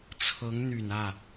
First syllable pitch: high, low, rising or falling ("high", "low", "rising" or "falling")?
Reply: rising